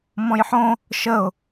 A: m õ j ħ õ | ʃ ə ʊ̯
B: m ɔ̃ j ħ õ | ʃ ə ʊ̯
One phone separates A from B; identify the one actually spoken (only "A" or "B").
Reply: B